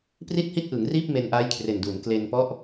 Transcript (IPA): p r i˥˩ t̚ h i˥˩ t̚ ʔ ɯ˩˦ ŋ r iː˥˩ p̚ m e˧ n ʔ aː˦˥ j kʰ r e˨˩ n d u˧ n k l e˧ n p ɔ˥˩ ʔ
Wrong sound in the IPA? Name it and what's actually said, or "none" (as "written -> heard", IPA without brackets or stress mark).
u˧ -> u˩˦